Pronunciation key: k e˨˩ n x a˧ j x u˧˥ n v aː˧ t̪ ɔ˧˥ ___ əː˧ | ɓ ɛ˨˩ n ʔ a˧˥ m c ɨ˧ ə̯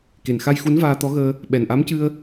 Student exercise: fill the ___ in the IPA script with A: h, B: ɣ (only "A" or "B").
B